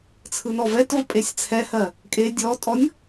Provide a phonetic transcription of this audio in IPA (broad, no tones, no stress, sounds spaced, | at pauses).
t͡sʰ ɯ n ɔ v ɛ t v ə pʼ e sʲ t͡sʰ ɛ h ɜ | kʼ e dʲ ɔ tʼ ɔ nʲ